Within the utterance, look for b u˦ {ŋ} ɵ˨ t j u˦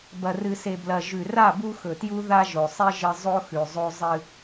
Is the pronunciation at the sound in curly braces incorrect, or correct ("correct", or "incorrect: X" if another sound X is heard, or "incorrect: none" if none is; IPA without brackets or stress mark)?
incorrect: x